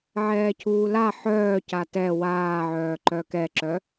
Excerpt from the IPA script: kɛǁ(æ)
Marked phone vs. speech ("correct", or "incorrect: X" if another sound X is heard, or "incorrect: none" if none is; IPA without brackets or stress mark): incorrect: œ